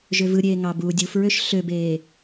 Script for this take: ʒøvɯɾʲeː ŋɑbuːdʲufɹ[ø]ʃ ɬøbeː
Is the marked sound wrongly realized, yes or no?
no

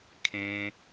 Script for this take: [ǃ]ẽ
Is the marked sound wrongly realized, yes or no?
yes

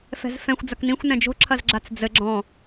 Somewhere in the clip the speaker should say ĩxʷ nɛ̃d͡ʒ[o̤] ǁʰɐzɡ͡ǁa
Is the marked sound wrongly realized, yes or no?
no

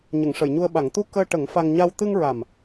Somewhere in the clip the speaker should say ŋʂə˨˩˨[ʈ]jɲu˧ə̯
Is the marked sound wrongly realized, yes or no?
yes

